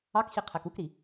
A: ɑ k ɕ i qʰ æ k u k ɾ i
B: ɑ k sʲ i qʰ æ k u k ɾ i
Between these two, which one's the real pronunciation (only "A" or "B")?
A